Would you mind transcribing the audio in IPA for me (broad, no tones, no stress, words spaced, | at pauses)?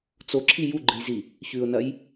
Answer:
t͡soǁʰi juɡ͡ǃɨjzi | çʉʊ̯nɐj